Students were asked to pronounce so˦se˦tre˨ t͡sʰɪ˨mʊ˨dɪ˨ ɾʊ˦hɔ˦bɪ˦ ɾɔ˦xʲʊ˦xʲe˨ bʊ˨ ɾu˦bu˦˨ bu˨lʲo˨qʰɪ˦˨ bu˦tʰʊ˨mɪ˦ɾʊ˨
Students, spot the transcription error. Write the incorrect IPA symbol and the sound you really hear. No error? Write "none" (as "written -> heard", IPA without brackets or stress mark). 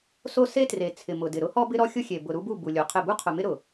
tʰ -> qʰ